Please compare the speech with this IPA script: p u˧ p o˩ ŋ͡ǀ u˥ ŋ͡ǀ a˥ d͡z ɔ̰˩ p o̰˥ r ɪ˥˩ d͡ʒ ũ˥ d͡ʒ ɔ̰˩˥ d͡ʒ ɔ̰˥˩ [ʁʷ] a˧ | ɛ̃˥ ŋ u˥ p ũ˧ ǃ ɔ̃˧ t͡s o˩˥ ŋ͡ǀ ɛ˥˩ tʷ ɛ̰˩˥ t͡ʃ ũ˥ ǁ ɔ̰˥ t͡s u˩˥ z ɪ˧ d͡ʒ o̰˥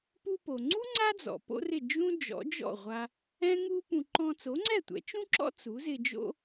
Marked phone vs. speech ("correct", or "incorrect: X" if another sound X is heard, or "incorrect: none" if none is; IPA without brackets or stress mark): correct